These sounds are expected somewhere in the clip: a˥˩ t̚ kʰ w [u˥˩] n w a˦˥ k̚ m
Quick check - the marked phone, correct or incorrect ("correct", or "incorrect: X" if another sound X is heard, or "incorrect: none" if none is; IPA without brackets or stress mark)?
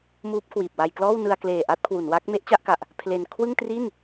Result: incorrect: u˩˦